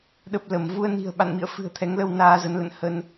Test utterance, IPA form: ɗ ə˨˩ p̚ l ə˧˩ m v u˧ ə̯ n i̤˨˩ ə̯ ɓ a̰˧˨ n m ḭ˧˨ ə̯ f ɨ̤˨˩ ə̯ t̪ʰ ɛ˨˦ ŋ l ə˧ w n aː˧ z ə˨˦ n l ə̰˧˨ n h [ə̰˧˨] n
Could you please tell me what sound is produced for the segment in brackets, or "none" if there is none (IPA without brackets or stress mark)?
ə˧